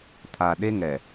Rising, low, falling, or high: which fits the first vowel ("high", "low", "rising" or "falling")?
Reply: low